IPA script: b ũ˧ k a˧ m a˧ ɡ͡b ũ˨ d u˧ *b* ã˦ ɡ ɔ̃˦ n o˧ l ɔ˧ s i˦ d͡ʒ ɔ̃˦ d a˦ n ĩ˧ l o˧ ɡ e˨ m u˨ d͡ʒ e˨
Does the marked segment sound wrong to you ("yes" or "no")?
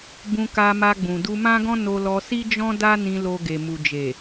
yes